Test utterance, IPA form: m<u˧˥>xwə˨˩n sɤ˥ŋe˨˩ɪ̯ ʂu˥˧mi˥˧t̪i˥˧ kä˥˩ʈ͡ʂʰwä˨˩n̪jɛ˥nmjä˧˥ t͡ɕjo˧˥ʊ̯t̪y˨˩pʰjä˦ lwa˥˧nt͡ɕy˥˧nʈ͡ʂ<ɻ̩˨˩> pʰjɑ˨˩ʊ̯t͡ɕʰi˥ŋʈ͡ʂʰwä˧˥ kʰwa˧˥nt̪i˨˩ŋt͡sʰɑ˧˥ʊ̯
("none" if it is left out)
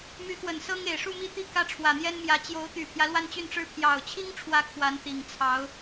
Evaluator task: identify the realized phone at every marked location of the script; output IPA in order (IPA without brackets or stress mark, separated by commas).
y˧˥, ɻ̩˥˩